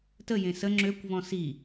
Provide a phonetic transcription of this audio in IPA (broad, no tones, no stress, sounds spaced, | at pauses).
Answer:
t ə j ẽ s ə ŋ͡ǁ ø kʷ v ɔ̃ s i